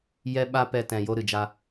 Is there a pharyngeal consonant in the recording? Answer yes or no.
no